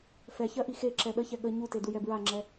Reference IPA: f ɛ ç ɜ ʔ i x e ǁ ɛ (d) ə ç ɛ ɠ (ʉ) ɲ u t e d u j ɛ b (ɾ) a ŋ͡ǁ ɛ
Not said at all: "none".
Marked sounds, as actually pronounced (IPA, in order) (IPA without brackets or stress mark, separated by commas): ɗ, ə, ɹ